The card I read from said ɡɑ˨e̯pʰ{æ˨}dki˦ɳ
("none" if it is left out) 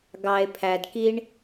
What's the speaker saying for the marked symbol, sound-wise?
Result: æ˨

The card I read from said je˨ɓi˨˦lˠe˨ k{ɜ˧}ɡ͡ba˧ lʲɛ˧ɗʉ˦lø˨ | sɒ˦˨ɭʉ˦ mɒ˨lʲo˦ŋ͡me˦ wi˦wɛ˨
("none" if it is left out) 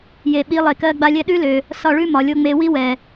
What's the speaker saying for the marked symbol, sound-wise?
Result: ɜ˧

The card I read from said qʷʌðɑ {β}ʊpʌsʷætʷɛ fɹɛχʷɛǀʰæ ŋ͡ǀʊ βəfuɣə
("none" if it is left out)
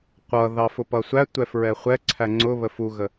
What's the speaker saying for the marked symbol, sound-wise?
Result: f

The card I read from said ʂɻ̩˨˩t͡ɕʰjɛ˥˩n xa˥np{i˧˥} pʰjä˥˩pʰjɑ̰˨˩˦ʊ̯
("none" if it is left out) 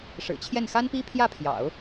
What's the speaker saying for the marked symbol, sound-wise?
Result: i˥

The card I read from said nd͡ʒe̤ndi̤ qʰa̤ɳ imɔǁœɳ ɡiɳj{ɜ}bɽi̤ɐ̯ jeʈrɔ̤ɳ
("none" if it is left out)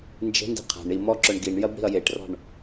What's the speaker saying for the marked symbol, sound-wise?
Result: ɜ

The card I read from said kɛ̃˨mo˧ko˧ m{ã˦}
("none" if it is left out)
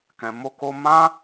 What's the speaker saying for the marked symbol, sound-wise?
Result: ã˦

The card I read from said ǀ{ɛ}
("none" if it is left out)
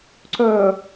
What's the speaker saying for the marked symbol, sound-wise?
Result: œ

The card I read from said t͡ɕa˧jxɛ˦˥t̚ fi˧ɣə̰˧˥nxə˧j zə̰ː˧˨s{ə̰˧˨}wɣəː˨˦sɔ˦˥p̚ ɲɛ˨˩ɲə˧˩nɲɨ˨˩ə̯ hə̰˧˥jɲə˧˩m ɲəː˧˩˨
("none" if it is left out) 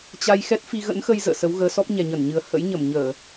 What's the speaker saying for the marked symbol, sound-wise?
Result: ə˨˦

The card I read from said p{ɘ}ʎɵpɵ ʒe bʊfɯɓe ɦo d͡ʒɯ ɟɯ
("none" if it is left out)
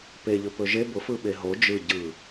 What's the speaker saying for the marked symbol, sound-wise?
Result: e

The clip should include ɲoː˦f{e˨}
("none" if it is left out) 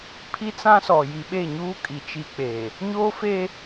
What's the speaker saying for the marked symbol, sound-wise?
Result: e˦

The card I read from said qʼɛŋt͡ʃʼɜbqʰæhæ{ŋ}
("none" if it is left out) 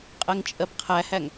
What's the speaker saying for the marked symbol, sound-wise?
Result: ŋ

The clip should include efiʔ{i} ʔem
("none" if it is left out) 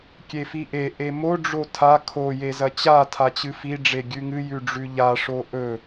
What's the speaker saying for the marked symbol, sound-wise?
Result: e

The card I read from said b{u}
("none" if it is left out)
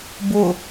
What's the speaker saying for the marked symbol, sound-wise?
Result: ʊ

